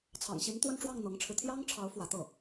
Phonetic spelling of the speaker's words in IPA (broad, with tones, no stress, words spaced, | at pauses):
t͡sʰɑ̰˨˩ŋɕi˧˥nt̪wə˥˧nʈ͡ʂwɑ˥˩ŋ n̪ɤ˧˥ŋʈ͡ʂʰɻ̩˧ t̪ʰjɑ˥ŋʈ͡ʂʰɑ˧˥ʊ̯ fwä˧˥t̪ɤ˥˩